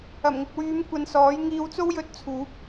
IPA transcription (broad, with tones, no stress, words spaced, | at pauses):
ɐ˨˩mŋɪ˨k̚wyː˨˧m kʷɐ˧nsɔː˨˥j ŋiː˧wt͡so˥wjɵ˧t̚t͡sʰuː˨˥p̚